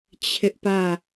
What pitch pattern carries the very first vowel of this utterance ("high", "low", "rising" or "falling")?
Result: high